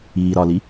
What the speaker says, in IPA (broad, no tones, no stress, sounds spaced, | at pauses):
iː ɾ ɒ l i